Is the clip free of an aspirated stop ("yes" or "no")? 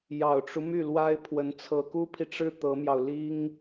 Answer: no